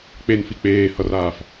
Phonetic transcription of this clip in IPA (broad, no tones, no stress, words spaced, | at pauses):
k͡penfi k͡peːhʌraːf